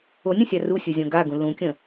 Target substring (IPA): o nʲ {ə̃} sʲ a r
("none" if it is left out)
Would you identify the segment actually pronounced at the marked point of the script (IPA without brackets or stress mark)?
ə̃